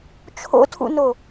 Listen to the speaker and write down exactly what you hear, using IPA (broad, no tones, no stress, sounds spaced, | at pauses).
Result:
t͡ʃʰ o̰ tʰ ṵ n o